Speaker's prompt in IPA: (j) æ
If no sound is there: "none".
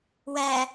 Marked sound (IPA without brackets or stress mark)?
w